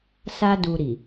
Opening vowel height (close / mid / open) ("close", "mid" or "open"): open